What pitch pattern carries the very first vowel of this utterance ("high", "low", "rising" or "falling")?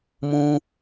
high